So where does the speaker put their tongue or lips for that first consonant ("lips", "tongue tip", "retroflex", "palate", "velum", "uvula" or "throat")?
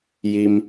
palate